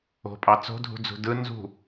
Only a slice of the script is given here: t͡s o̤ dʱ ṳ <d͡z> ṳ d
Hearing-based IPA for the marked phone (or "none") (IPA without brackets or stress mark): d͡z